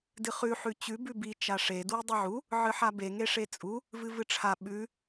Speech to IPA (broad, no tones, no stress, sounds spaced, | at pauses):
d ɨ χ ʉ ħ ʉ t͡ɕ ʉ b ʉ b i t͡ʃ a ʂ e d w i dˤ i ʕ u | ʕ ɨ ħ a b e ŋ e ʂ e t͡sʼ u | v ɨ v ɨ ʈ͡ʂʰ a ɓ ʉ